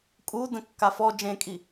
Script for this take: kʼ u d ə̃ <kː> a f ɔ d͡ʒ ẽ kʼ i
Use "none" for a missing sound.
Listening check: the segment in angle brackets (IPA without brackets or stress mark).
kː